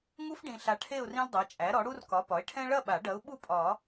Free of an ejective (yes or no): no